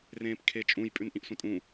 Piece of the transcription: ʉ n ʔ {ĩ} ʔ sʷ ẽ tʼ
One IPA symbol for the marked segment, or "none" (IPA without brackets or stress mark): ĩ